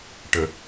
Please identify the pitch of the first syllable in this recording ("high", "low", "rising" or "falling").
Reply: low